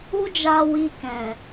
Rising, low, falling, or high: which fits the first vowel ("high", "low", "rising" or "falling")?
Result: high